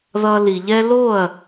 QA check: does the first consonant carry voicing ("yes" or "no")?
yes